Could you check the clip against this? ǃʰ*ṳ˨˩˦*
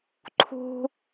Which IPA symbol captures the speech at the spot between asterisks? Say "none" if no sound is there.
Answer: ṳ˩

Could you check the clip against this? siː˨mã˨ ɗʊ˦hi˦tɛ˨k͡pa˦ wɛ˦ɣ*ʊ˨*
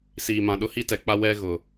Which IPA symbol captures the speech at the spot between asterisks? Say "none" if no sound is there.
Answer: ʊ˨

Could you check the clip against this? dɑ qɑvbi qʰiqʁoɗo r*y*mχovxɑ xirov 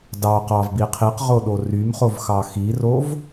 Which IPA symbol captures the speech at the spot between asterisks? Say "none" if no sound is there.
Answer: y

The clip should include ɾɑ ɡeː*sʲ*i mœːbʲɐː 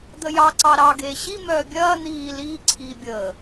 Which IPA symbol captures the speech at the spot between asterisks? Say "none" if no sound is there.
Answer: ɕ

